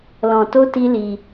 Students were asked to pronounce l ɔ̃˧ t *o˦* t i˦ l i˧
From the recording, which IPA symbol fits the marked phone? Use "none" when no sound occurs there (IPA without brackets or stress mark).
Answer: o˦